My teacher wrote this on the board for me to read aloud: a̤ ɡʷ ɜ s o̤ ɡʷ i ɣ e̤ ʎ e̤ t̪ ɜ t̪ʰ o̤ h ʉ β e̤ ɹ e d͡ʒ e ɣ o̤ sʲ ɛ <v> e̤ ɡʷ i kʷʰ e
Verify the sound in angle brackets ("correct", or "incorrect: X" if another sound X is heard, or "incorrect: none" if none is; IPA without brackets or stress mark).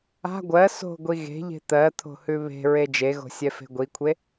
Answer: incorrect: f